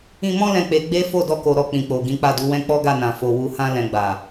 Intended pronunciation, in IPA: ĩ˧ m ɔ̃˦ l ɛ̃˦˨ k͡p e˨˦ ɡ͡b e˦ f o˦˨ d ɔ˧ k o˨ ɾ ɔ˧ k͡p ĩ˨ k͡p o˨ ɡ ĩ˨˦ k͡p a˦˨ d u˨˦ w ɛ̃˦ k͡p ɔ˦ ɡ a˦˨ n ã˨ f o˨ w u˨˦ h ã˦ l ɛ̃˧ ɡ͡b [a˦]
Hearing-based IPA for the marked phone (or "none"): a˨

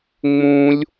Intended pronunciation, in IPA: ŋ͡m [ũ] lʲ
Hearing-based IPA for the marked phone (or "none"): ũ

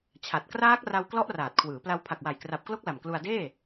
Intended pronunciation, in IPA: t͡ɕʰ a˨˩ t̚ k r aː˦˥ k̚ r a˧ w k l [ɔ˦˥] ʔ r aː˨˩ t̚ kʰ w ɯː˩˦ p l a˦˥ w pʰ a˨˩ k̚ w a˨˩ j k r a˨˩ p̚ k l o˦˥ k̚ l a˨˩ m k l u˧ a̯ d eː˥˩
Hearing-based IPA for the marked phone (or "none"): ɔ˦˥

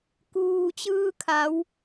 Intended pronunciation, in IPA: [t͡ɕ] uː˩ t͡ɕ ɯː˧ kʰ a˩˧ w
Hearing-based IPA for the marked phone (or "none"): k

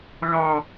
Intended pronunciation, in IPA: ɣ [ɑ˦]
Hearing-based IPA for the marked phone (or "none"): ɑ˦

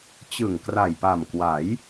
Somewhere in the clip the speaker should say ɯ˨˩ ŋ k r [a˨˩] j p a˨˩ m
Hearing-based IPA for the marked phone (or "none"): a˨˩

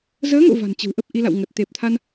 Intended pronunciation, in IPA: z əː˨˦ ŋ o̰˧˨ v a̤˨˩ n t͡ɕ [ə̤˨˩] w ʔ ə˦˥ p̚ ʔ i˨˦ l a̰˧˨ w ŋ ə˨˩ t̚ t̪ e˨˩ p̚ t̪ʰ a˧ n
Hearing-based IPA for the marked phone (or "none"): ə̤˨˩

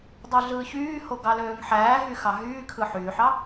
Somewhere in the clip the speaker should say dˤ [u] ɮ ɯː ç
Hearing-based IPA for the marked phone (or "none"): y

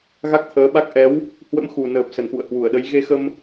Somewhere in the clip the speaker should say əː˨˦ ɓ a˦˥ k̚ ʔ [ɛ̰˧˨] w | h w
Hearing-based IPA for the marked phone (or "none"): ɛ˨˦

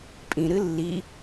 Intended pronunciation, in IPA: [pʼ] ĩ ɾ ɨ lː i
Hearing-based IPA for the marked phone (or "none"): pʼ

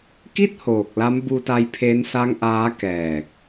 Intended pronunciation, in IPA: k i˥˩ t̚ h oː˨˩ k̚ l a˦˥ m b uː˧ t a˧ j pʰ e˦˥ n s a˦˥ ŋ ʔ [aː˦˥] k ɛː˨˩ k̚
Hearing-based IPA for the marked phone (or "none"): aː˦˥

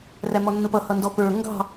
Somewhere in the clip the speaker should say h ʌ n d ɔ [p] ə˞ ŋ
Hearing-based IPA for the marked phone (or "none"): p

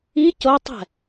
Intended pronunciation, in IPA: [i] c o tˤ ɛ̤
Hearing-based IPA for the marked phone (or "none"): i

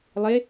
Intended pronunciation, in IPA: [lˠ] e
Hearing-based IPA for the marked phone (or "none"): lˠ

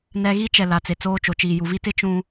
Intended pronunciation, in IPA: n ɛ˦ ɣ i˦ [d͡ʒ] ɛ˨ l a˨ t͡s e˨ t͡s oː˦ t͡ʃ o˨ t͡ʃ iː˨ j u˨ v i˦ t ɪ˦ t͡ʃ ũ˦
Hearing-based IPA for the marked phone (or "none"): t͡ʃ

